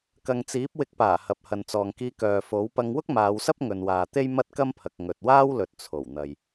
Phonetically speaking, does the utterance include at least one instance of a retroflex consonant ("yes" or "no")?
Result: no